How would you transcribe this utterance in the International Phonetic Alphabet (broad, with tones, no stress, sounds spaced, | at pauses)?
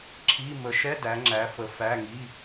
ǁʰ i˧˥˧ m ə˨˦ ʃ ɛ˧˥˧ d æ˨˦ ŋ͡ǁ æ˨˦ f ə˨˦ f æ˧˥˧ ŋ i˧˥˧